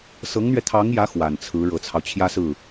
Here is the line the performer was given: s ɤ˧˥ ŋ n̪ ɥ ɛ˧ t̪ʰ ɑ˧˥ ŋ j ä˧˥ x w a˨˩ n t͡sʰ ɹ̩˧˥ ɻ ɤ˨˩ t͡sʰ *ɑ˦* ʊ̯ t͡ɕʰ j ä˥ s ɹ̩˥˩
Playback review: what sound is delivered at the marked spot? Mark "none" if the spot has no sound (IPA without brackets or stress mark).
ɑ˦